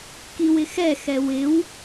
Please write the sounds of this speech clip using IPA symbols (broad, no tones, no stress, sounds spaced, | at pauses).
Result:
k i w ɪ x ɛ x ɛ w ɪ w